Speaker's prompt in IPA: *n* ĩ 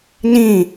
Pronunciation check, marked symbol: correct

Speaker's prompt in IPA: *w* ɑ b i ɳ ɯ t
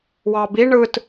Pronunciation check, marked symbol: correct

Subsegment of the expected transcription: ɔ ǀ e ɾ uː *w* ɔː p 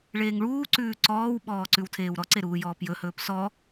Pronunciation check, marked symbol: incorrect: j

